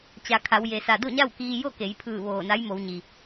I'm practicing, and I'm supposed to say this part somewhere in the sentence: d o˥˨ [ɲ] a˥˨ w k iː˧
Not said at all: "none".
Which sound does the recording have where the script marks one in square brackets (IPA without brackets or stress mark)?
ɲ